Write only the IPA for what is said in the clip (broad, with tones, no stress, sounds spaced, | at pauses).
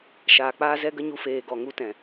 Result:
ʃ aː˨ k͡p aː˦ z ɛ˦ ɡ ə˦ ɲ u˧ f eː˨ ɡ ɔ˨ ŋ u˦ t ɛ̃˨